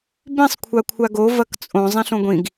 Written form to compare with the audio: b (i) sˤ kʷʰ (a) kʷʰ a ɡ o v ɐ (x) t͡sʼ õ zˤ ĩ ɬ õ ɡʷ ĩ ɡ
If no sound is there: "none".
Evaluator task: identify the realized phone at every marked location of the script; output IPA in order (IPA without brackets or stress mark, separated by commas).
ĩ, a, k